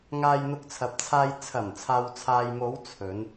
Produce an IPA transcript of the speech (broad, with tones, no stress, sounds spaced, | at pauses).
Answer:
ŋ aː˧ j n̪ ʊ˧ k̚ t͡sʰ ɐ˨ p̚ t͡sʰ aː˧ j t͡sʰ ɐ˨˩ m t͡sʰ aː˨ w t͡sʰ aː˨ j m o˨˧ w t͡sʰ ɵ˨˧ n